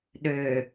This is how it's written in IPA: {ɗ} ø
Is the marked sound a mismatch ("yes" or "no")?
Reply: no